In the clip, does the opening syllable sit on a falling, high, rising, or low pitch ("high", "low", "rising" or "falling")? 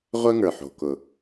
high